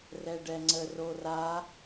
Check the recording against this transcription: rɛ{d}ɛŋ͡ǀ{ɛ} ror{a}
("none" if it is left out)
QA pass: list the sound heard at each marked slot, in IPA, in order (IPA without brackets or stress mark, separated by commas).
ɖ, ə, a